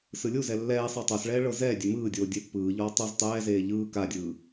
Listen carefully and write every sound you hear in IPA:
s ɯ lʲ u z ɛ lː ɛː sˤ i tˤ o s ɭ ɛː ɭ ɤ z ɛː dʲ ɛ m ɯː dʲ oː dʲ e pː ɯː ʎ ɔː tˤ o z tˤ ɛː z eː ʎ ɯː k a dʲ ɯː

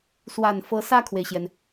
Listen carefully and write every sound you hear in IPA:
s w a˨˩ n f ɤ˧˥ s ä˥˩ kʰ w e˩ ɪ̯ ɕ j ɛ˩ n

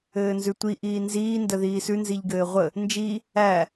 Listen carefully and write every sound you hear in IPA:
ɘː n z ʉ tʷ i ʔ iː n z iː n d ə ð iː s ʉ n z i ʎ ɡ ɘː ʁʷ ə | n d͡ʒ i | æ

